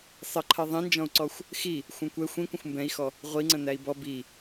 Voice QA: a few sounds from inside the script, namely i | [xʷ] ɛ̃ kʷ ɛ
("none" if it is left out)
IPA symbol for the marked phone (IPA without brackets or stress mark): xʷ